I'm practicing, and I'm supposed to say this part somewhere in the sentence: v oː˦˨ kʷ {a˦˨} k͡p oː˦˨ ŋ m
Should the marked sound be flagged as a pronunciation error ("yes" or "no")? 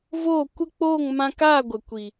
yes